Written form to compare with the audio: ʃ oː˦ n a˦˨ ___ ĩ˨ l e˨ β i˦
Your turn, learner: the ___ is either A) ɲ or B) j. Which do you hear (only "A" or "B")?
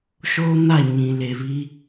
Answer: A